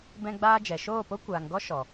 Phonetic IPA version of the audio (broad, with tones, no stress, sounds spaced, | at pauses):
b ɛ̃˧ ɡ͡b aː˧ d͡ʒ ɛ˨ ʃ oː˦˨ p o˦ kʷ aː˨ ŋ ɡ ɔ˦ ʃ ɔ˨